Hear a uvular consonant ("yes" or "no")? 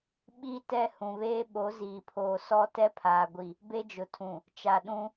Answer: no